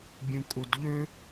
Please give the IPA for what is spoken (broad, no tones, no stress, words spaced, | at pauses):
bʲũkʼudʎø